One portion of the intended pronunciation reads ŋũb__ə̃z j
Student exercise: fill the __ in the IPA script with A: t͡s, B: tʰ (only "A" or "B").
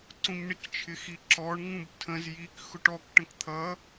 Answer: B